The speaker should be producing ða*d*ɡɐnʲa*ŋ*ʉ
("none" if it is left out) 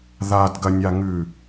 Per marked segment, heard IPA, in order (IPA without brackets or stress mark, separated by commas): d, ŋ